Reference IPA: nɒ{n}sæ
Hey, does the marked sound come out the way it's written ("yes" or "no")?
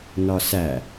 no